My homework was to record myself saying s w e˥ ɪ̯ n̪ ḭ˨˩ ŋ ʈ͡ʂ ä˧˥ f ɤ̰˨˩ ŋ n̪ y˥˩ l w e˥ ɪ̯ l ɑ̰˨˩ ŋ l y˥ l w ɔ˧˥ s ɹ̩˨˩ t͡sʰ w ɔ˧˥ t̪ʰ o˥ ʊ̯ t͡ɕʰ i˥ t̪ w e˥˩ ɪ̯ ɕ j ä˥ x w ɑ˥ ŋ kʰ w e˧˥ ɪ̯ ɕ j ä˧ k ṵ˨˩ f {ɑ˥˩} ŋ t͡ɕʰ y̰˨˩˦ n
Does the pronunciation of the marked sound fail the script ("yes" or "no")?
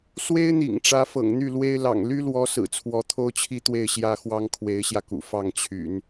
no